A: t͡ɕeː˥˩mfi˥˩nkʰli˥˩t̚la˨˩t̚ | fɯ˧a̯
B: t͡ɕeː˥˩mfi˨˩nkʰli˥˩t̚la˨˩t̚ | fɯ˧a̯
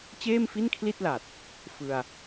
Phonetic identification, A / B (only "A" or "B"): A